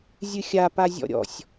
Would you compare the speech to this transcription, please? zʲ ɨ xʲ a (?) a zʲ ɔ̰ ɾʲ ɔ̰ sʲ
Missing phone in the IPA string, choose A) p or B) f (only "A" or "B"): A